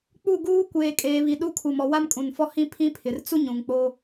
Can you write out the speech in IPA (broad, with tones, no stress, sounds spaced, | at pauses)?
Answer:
k͡p u˦˨ ɡ uː˦ kʷ eː˨ kʼ eː˨ β i˨ ɗ u˦ kʰ u˨ m ɔ˨ w a˦ m kʼ ũ˨ n f ɔ˦ h ĩ˦ pʰ ĩ˦ pʰ ɪ˨ r t͡s u˦ ɲ ũ˨ ŋ k͡p o˦